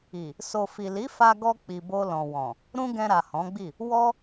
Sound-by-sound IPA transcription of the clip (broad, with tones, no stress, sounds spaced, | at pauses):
i˨ | s o˨ f i˨ l i˨˦ f a˧ ɡ ɔ˧ k͡p i˨ b o˧ l ɔ̃˨ w ɔ̃˨ | ɾ ũ˦ ɡ ɛ̃˧ ɾ a˨ h ɔ̃˨˦ ɡ͡b i˦˨ | w ɔ˦